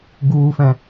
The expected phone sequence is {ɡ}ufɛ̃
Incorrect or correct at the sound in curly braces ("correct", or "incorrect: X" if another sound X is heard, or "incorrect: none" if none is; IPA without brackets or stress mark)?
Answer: correct